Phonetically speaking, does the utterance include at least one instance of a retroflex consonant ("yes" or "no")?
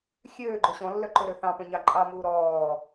no